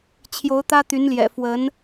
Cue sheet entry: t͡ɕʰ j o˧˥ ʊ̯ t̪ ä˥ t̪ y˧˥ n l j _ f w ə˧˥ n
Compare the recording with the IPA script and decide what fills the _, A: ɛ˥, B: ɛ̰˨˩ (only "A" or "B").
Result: B